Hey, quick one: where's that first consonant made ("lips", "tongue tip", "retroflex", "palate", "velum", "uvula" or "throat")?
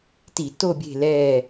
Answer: tongue tip